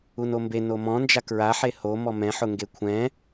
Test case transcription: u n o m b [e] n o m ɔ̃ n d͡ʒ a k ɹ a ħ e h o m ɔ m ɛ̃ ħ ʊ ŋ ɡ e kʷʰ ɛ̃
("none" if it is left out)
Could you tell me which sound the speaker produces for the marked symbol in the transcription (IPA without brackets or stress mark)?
e